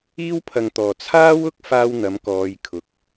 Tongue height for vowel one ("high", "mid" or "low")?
high